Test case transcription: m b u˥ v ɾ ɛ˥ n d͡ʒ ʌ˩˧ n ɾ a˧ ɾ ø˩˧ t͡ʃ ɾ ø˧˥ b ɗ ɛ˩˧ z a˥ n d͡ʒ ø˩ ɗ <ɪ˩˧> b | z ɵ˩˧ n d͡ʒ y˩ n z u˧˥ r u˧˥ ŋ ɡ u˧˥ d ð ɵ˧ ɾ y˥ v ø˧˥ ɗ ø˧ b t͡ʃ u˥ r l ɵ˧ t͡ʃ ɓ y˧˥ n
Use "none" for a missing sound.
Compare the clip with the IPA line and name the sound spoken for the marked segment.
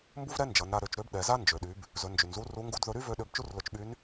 y˩˧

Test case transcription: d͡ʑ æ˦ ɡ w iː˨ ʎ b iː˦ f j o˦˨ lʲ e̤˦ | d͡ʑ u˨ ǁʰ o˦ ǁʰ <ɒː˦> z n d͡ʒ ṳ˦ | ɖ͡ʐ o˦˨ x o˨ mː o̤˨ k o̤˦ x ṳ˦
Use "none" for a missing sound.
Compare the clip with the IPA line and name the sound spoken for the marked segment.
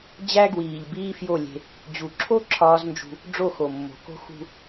ɒː˦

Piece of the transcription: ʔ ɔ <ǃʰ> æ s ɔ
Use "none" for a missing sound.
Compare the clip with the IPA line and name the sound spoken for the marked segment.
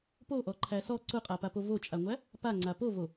ǃʰ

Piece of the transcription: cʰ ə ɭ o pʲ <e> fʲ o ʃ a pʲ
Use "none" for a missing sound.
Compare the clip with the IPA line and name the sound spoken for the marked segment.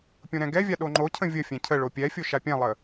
ɛ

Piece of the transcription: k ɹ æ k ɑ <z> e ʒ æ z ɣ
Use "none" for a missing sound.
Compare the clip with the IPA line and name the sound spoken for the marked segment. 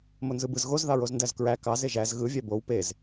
z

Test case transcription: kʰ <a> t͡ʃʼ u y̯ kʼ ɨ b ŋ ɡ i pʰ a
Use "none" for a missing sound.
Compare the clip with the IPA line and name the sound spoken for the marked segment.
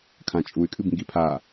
ã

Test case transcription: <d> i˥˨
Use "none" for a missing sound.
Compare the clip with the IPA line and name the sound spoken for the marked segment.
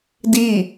d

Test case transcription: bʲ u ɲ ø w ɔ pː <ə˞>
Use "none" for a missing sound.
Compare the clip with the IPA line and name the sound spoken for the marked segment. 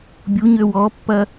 ɐ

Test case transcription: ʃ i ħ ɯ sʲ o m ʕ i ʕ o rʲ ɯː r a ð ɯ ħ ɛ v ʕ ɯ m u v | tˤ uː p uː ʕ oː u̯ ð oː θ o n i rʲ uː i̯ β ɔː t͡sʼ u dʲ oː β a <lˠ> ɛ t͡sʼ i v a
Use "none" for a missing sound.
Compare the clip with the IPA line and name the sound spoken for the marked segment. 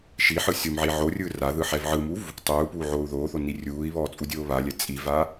lʲ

